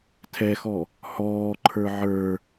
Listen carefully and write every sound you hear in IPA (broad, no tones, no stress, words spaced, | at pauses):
tʰɛxɔ | hɔːǃʰə˞ ʕə˞